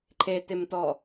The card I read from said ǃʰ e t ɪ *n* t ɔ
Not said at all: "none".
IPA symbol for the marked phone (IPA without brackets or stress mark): m